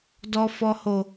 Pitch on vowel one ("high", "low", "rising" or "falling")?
high